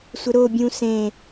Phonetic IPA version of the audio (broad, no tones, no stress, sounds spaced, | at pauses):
sʷ ɘ ɾ o bʲ ũ s ẽ